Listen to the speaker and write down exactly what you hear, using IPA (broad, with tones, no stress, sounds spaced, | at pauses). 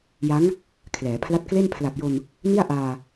j a˦˥ ŋ | kʰ l ɛː˩˦ pʰ l a˥˩ t̚ k l e˥˩ n pʰ l a˨˩ p̚ j o˧ n | n i˥˩ a̯ ʔ aː˧